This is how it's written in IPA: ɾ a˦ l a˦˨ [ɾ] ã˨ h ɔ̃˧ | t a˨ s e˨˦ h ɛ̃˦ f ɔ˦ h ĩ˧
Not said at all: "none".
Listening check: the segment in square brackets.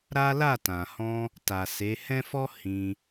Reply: t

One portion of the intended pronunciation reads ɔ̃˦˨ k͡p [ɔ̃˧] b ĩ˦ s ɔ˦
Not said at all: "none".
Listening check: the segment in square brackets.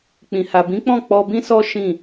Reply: ɔ˧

